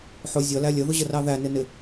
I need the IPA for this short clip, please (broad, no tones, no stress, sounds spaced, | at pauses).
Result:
ħ ʊ zʲ ʌ l æ lʲ ə ð ʊ ʑ ə r ɑ ð æ n ɪ n ɪ